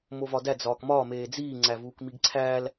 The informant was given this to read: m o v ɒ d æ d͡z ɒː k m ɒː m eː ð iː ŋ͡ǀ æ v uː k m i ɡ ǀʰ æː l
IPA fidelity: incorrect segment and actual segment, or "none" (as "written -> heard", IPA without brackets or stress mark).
ð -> d͡z